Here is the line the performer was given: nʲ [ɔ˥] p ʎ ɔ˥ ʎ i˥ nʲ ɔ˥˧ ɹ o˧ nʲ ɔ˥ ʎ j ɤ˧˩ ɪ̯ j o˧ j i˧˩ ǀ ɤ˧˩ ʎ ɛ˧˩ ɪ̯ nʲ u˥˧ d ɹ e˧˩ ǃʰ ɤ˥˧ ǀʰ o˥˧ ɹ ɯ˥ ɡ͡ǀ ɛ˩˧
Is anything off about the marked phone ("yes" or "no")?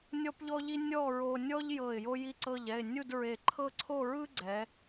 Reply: no